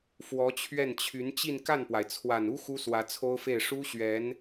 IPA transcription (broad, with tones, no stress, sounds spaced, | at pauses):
f w ɔ˧˥ t͡ɕʰ ɥ ɛ˥˩ n t͡ɕʰ y˧˥ n t͡ɕ i˥˧ n k a˥˩ n p w a˩ ɪ̯ t͡sʰ w a˨˩ n u˥ x u˥ s w ä˧˥ t͡sʰ o˥ ʊ̯ f e˥˩ ɪ̯ ʂ u˥ ɕ ɥ ɛ˧˥ n